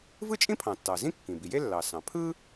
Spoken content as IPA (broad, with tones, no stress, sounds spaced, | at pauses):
v ɯ˥ t͡ʃʼ ĩ˥ pʰ ɑ̃˩ tː ɑ˩ z ĩ˥ kː ĩ˩ b i˩ j e˥ lː ɑ˩ s ɑ̃˩ pʰ ɯ˥